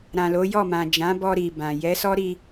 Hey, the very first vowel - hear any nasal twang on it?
yes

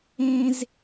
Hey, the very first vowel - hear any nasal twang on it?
yes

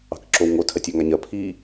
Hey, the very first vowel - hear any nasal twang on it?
no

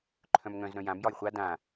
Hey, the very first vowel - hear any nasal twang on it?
yes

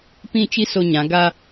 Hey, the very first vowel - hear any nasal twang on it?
yes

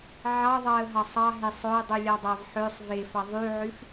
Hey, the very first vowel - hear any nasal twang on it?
no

